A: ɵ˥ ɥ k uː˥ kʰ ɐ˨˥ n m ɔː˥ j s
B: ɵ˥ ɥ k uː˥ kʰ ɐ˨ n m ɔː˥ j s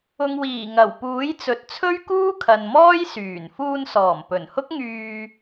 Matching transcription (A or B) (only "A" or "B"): B